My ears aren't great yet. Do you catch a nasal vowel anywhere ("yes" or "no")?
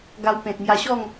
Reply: yes